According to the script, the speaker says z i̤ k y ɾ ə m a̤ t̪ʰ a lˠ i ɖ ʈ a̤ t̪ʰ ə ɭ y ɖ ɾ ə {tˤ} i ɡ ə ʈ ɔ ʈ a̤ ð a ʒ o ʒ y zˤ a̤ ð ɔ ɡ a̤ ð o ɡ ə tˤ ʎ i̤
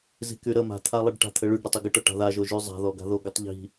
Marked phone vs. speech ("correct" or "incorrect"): correct